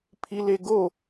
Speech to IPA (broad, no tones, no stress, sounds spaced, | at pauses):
pʰ i l e ɡ o